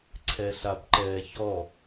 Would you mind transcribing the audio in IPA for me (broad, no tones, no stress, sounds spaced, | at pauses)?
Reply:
ǀʰ ɛ ɬ a b ǃ ɛː ç ɔ